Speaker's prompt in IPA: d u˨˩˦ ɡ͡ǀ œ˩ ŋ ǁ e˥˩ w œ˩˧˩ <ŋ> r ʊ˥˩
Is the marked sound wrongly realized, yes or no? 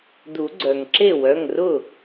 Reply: no